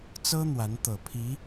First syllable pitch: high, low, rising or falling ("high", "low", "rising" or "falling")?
high